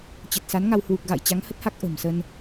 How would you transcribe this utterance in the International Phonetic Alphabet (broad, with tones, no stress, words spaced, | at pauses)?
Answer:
t͡ɕə˨˩t̚sa˨˦nŋa˧w hwu˨˩k̚ɣa̰˧˨j t͡ɕa˨˦ŋhə˦˥t̚ha˦˥k̚ ʔə̤˨˩m sə˧n